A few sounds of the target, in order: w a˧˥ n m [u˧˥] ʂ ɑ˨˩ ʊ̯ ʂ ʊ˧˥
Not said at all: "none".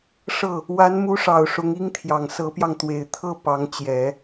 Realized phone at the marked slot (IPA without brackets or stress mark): u˧˥